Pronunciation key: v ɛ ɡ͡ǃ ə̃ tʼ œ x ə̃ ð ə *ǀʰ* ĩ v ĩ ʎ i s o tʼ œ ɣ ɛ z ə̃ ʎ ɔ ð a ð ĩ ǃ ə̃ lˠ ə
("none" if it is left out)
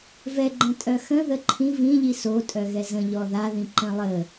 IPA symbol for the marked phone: ǃʰ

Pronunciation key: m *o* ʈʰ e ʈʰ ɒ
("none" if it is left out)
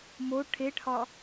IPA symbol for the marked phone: o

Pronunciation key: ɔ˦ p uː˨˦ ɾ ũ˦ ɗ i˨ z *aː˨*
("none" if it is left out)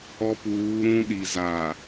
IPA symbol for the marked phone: aː˨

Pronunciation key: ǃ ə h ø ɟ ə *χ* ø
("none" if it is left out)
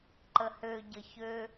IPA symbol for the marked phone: ç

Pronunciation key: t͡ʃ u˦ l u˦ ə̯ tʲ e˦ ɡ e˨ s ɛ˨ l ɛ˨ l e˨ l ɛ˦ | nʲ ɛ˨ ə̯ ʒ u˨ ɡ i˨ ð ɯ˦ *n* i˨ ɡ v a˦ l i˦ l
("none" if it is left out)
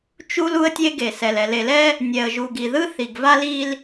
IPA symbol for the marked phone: θ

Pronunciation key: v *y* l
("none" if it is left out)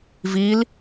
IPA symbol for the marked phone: i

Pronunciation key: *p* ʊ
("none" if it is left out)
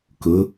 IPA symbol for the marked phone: k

